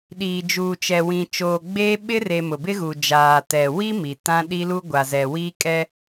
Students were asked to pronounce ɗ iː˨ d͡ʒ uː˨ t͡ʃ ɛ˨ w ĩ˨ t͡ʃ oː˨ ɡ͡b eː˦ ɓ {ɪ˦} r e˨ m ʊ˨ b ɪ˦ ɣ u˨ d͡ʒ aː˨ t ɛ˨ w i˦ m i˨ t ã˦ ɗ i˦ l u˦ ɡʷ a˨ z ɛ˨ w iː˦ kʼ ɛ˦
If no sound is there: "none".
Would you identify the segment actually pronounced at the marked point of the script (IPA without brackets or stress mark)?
ɪ˦